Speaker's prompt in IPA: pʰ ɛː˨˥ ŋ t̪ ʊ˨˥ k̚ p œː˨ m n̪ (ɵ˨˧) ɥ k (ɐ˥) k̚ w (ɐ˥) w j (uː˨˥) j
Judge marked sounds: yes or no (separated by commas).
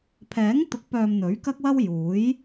no, yes, yes, yes